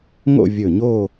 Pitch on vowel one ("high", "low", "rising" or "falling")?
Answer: falling